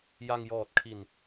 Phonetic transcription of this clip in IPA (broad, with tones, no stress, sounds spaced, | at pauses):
j a˧ ŋ j ɔː˨˩ t̚ kʰ i˨˩ n